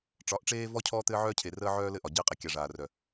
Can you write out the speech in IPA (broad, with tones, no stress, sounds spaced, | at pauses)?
ʈ͡ʂ ɒ˨˦ ʔ ʈ͡ʂ eː˦ v ɔ˦ cʰ ɔː˦ t̪ ɘː˦ ʕ œː˦ cʰ e˨ r əː˦ ʕ œː˦ l ɘ˦ ʔ ɒ˨ ɟ ɘː˦ qʼ e˨ kʲ a˨ ʐ aː˨ r œ˨